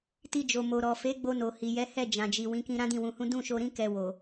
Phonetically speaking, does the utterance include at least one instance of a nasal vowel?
yes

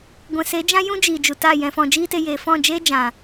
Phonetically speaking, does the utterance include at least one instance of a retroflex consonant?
no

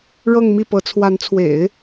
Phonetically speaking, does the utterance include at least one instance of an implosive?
no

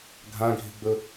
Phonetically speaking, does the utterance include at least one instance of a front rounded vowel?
no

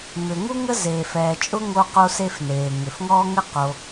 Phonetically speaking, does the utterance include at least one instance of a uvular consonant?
yes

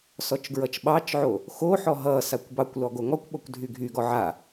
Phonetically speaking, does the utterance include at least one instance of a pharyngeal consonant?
yes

